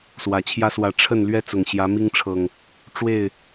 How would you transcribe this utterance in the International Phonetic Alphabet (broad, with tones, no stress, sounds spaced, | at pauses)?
s w ä˨˩ t͡ɕʰ j ä˦ s w ä˨˦ ʈ͡ʂʰ ə˥˨ n l ɥ ɛ˦ t͡s ʊ˨˩ ŋ ɕ j ä˨˦ m i˦ ŋ ʈ͡ʂʰ ɤ˨˩ ŋ | ʈ͡ʂ w e˥˨ ɪ̯